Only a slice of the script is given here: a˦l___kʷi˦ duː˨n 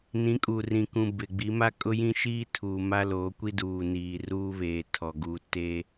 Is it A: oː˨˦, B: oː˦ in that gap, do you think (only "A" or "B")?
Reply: A